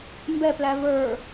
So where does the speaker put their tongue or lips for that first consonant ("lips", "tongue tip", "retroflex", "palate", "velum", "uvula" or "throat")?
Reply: lips